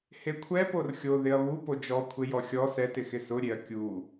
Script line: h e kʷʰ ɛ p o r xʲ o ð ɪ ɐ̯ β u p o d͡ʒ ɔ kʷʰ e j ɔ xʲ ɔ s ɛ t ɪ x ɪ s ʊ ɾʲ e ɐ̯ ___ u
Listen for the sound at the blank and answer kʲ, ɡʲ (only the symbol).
kʲ